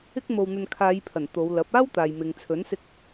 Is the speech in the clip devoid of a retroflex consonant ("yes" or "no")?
yes